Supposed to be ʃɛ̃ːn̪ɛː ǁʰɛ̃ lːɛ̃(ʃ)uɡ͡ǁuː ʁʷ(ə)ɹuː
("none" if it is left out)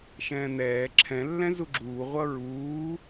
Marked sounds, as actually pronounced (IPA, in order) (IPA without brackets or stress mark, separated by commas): z, ʌ